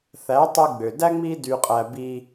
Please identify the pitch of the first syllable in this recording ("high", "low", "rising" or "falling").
rising